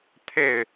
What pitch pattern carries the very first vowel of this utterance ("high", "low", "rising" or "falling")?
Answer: falling